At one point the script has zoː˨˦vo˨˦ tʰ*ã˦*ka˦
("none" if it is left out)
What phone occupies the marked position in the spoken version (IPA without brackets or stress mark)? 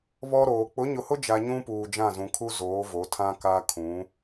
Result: ã˦